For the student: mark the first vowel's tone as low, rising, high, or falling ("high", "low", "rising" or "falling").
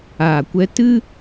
low